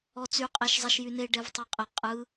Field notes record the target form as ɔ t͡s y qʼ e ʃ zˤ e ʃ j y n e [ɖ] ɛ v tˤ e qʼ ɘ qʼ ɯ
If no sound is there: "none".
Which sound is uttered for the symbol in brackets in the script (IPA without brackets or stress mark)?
ɖ